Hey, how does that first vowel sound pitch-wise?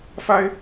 high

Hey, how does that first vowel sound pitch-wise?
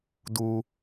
high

